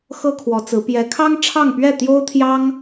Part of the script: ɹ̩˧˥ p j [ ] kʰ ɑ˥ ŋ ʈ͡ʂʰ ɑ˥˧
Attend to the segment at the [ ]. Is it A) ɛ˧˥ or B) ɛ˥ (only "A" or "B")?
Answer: A